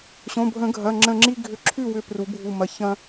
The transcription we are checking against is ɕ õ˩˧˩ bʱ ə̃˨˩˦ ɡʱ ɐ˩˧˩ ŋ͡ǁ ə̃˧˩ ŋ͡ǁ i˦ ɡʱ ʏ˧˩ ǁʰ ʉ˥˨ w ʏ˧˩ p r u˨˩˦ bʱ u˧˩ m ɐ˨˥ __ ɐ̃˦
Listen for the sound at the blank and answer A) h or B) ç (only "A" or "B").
B